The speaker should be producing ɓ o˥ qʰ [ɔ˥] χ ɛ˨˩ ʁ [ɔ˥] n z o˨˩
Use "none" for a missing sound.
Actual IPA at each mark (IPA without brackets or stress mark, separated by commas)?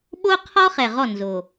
ɔ˥, ɔ˥˩